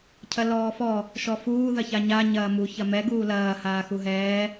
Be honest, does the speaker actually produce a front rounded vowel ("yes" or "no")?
no